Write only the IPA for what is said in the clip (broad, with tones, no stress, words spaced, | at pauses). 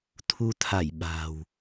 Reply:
t̪ʰu˧t̪ʰa˧˩j ɓa̤ː˨˩w